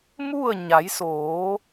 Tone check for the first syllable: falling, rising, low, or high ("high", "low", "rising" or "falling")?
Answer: falling